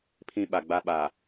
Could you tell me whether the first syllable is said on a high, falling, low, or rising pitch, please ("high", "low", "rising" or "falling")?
high